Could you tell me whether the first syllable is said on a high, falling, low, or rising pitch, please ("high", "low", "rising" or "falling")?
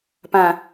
low